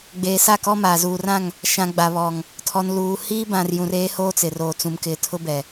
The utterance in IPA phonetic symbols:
ɡ͡b eː˨ s a˦˨ k ɔ˦ m aː˨ z uː˨ r ã˦˨ ŋ | ʃ ã˨ ɡ͡b a˨ β ɔ˨ ŋ | tʰ ɔ˨ n l uː˨ h iː˦ b ã˨ r j ũ˨ r eː˦ h oː˦ t͡s ɪ˨ r oː˨ t͡s ũ˨ m k ɪ˨ tʰ ʊ˦ b ɛ˨

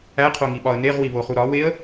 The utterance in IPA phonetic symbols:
æ qʰ o ŋ i ɓ ɒ ə̯ n e ʁ w i β o χ u ɾ ɒ w e ə̯

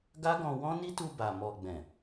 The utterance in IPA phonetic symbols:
ɡ a˦ ɡ ɔ̃˧ w ɔ̃˦ n i˦ t u˧ b a˨ m ɔ˨ ɡ͡b ɛ̃˨

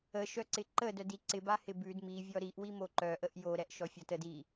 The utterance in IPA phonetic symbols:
ə ʃ œ ǀ ɪ ǃ ə d œ d i ǀ ɪ b a h ɪ b ʉ d m i vʲ ɔ ɾ i ʔ w i m o ǃ œ ʔ ə ʔ j o ɾ ɛ ʔ ʃ ɔ fʲ ɔ t ə d i

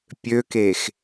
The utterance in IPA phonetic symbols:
pʲ ø k e x

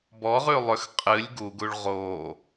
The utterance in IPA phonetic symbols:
b ɔ ʁ ʉ lˠ ʏ x qʼ ɨ lʲ ɡ u ɡ u ɭ ʁ oː

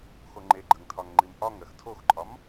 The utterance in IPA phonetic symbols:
x o ŋ͡ǃ e ɡ͡ǃ ə ŋ tʰ ɒ ŋ ŋ͡ǃ i m ʔ ɒ ŋ ɜ x tʰ o x ǃʼ ɒ m

